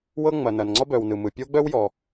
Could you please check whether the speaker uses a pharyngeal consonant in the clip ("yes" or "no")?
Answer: no